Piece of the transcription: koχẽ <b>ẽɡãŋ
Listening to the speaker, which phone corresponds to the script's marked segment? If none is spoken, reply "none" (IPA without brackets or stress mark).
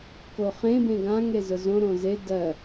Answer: b